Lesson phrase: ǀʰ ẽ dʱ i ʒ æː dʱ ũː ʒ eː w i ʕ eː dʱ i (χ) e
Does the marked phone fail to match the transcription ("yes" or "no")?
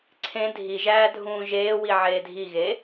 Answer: yes